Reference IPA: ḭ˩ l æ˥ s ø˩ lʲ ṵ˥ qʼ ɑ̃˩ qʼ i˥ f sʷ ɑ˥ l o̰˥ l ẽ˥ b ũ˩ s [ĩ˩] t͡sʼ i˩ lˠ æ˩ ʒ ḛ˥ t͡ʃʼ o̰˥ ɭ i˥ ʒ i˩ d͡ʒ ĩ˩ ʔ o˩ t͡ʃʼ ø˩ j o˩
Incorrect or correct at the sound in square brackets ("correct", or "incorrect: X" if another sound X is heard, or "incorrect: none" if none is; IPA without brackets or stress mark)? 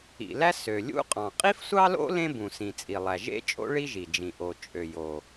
correct